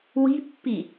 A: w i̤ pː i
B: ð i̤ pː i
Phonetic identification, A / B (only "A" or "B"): A